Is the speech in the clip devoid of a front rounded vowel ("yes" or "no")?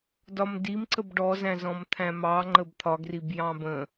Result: yes